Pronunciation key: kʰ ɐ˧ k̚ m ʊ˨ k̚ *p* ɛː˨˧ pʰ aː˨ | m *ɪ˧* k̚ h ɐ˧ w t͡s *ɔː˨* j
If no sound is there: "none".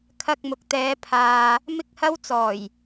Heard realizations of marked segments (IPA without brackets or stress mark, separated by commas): t̪, ɪ˧, ɔː˨˩